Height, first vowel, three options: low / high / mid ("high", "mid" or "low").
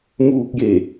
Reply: high